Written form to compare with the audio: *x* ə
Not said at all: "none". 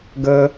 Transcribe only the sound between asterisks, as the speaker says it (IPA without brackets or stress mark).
ɡ